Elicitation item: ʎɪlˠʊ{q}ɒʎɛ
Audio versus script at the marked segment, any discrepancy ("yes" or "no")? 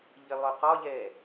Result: no